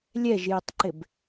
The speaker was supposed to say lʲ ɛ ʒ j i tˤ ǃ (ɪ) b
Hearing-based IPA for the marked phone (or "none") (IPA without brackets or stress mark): ɪ